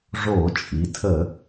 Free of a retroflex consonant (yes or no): no